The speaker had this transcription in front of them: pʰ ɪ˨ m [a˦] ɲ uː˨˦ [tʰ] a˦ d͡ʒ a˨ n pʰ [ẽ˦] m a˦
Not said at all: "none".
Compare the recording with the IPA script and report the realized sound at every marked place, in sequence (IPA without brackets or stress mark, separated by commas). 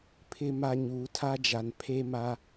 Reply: a˦, tʰ, e˦